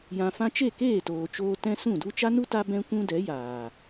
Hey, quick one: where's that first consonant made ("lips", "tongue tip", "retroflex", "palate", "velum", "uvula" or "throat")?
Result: palate